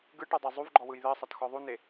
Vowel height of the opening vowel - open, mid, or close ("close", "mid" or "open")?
close